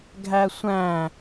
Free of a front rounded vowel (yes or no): yes